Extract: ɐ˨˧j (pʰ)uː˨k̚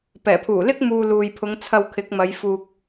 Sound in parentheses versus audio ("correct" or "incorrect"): incorrect